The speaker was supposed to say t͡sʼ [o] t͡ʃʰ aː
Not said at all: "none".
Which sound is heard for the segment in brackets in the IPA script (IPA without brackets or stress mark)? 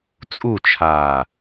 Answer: u